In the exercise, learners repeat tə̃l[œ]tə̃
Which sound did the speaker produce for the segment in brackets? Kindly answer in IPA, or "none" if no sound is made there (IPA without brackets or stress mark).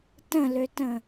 ø